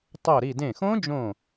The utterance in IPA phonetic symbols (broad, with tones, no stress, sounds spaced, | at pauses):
tˤ o˧˩ ɾ i˧˩ d ẽ˧˩ x õ˦˥ d͡ʒ õ˧˩